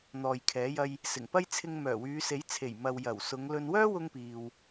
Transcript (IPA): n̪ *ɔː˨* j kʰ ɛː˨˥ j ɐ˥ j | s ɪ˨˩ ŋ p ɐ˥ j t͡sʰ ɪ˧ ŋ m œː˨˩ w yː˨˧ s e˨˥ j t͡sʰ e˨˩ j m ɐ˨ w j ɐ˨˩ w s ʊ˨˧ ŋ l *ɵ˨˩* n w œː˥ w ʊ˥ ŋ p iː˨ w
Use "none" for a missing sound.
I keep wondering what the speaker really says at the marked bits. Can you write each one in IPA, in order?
ɔː˨, ɵ˨

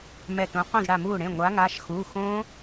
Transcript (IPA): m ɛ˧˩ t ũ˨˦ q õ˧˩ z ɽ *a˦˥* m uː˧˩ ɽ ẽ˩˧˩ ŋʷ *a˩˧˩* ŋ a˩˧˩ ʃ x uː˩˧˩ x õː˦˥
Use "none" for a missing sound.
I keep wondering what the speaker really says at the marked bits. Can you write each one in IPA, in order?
a˧˩, a˨˦

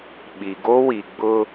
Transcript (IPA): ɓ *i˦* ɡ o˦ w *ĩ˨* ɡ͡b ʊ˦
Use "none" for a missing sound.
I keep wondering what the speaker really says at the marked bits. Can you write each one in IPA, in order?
i˨, i˨

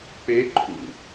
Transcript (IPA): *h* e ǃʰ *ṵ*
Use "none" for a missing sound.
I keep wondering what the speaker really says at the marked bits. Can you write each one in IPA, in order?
p, ṵ

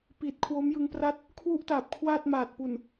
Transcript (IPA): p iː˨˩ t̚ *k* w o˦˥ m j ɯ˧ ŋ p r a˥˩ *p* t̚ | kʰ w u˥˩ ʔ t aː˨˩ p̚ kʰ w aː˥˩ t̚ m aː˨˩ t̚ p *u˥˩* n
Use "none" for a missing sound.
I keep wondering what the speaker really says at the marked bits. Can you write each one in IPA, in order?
kʰ, none, u˨˩

